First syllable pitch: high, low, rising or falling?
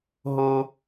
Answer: high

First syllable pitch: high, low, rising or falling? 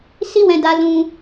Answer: high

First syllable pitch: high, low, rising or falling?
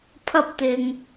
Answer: high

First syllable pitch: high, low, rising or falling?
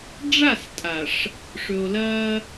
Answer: falling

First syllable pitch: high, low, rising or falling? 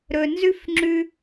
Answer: low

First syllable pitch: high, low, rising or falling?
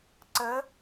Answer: rising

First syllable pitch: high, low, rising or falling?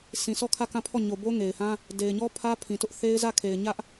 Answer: low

